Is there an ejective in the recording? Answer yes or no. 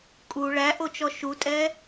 yes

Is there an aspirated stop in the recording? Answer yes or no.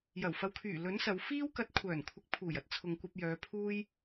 yes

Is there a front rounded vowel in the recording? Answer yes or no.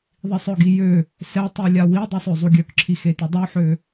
yes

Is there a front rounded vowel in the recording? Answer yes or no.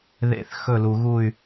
yes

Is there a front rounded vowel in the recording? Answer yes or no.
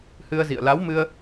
no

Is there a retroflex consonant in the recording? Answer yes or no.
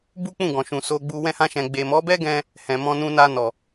no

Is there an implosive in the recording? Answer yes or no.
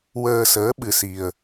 yes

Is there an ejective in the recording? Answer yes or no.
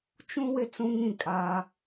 yes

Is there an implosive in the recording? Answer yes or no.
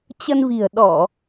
yes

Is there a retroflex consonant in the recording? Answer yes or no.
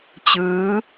no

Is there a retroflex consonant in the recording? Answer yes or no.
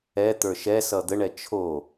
yes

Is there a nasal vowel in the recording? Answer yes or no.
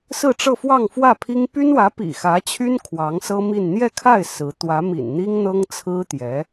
no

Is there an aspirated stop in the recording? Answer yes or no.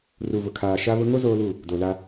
yes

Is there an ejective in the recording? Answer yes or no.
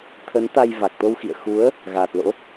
no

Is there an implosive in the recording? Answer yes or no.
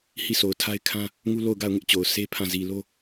no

